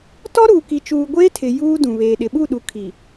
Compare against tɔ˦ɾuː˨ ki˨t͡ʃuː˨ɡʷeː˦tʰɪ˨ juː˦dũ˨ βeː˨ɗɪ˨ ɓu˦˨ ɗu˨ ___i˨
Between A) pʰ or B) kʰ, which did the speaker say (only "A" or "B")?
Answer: B